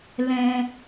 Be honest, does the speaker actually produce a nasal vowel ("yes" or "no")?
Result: yes